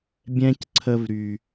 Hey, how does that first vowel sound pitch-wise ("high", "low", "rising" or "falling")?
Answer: high